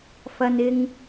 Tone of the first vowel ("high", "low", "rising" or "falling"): low